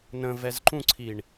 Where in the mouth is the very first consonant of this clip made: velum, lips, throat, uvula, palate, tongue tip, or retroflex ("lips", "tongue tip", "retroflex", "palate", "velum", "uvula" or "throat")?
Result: tongue tip